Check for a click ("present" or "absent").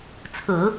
absent